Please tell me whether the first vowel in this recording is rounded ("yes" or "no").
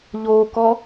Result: yes